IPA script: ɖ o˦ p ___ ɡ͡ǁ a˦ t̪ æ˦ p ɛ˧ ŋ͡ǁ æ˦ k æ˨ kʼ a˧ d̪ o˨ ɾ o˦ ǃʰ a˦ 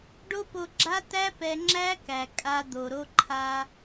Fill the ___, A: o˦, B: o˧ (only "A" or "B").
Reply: B